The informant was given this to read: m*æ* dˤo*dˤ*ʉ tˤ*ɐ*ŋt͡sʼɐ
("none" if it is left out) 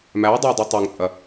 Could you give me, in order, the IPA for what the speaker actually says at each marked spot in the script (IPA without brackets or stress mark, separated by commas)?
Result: æ, dˤ, ɐ